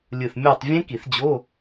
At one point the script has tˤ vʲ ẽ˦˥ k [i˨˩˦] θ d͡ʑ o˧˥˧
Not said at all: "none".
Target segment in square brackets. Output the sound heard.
i˨˩˦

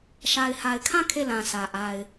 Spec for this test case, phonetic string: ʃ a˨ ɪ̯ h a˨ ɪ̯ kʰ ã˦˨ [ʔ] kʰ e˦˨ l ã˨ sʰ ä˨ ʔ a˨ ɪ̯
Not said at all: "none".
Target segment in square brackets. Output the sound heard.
none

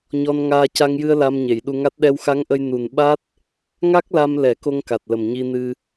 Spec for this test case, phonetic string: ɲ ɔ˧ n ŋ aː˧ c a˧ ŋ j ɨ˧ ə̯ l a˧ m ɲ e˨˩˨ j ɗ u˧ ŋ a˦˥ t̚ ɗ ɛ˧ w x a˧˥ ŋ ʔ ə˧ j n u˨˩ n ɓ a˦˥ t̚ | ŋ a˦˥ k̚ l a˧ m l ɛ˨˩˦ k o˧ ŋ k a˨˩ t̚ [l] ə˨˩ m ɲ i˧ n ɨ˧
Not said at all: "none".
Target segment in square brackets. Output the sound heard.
l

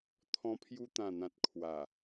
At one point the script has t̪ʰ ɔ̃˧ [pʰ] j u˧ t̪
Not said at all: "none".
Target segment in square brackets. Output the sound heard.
pʰ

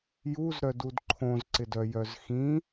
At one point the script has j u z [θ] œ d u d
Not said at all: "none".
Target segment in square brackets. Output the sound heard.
ɾ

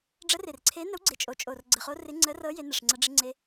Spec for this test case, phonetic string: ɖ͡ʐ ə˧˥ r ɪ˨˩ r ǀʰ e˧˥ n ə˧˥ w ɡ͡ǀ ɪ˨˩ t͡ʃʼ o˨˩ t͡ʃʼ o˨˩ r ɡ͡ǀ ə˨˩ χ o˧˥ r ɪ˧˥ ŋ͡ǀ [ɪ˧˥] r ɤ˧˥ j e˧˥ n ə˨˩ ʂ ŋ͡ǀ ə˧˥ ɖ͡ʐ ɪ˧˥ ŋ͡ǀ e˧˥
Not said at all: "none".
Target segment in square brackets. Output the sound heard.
ə˧˥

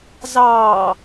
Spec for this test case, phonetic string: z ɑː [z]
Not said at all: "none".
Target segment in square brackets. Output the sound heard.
none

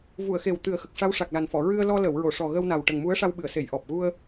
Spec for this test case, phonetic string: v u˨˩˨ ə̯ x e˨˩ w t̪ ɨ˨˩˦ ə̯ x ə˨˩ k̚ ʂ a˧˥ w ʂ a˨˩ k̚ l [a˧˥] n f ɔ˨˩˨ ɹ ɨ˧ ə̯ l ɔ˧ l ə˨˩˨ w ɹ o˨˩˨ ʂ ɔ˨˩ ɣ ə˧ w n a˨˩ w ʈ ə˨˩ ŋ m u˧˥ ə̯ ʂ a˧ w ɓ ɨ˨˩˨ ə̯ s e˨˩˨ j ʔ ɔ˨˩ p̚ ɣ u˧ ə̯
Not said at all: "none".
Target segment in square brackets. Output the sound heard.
a˨˩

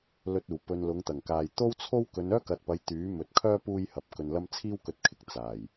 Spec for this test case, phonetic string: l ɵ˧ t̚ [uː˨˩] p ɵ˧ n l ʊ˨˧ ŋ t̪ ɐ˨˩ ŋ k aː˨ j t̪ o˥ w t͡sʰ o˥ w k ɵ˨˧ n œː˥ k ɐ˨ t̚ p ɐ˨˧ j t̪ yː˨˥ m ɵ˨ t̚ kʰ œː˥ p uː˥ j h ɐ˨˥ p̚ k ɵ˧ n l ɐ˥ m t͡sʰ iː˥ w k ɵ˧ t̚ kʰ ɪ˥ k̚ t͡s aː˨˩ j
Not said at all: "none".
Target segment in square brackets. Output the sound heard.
uː˨˩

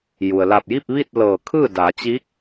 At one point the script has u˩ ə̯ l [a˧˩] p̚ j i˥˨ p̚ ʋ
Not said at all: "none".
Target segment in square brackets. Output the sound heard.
a˧˩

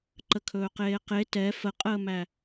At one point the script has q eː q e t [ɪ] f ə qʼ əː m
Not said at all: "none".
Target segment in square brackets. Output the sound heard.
ɛ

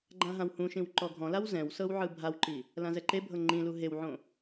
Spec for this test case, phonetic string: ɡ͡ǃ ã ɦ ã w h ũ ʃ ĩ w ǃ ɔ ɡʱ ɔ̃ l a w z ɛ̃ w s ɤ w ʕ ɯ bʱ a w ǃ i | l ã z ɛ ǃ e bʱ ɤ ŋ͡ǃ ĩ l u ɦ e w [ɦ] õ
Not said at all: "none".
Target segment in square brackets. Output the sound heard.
ʕ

